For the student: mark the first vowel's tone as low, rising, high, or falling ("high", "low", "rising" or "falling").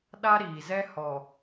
high